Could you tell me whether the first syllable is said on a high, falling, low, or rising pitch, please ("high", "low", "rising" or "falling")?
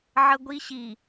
high